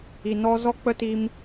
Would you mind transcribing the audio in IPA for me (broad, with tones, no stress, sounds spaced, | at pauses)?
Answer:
i˨ n ɔ˦ z ɔ˦ k͡p ə˦ t iː˧ m